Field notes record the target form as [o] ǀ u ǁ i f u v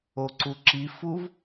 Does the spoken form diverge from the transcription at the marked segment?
no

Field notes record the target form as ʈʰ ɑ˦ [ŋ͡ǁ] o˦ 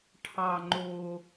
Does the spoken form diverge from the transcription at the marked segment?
yes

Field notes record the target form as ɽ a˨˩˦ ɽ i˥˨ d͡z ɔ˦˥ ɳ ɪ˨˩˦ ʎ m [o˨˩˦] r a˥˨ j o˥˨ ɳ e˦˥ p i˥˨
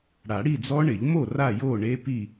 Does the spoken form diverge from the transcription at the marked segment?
yes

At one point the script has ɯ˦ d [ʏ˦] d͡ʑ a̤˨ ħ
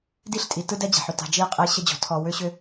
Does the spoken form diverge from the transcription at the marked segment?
yes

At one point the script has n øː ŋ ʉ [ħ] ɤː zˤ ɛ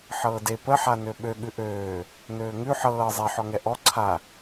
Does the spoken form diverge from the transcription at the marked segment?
no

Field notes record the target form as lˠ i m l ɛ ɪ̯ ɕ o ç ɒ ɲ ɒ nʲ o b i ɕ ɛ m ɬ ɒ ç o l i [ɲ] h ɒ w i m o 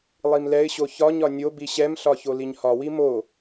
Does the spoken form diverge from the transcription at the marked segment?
no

